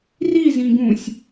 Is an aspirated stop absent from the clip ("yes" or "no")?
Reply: yes